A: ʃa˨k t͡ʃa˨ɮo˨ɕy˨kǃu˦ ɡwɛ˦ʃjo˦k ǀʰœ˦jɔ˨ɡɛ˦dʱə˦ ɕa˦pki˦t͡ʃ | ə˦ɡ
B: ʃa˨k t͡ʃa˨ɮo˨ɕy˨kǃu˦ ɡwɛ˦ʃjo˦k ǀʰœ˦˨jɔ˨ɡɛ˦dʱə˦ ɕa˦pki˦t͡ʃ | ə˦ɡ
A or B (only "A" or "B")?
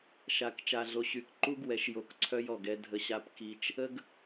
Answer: A